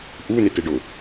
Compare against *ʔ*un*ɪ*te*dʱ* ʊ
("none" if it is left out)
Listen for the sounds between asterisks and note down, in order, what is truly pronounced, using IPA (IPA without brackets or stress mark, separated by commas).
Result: ʔ, ɪ, ɖ